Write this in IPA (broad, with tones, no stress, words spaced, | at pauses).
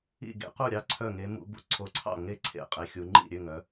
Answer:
ḭ˥˨ɡḛ˧˥qu˥˨ ɾʲɑ˥˨ǀʰœ˥˨ŋe˧˥ mṵ˧˥bṵ˥˨ ǀʰo˧˥ǀʰɑ̰˥˨ ŋe˥˨ǀʰḛ˧˥ qʼe˧˥xʲu˧˥ ŋ͡ǃḭ˥˨ɾʲø˥˨ŋ œ˧˥